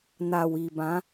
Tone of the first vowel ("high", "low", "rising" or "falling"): low